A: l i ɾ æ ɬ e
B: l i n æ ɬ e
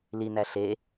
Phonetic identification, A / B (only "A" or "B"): B